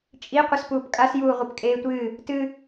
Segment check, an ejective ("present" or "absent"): present